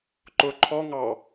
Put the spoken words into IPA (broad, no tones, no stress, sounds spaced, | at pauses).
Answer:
ǃ ʊ ǃʰ ɔ ŋ ɑ